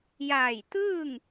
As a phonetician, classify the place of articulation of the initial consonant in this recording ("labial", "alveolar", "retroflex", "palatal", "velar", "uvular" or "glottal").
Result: palatal